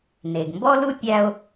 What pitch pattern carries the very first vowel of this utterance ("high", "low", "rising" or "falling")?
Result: low